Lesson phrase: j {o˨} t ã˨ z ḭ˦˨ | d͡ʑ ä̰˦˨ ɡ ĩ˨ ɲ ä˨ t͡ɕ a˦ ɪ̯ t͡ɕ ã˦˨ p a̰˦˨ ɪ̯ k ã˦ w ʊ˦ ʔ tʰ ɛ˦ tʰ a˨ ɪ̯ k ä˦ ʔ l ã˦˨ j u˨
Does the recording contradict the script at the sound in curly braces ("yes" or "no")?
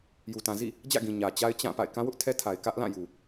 yes